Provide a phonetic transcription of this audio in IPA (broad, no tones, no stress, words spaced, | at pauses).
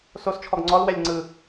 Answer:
sost͡ʃʰɔɡ ŋ͡ǀɔlwɛlʲ ŋ͡ǀɯ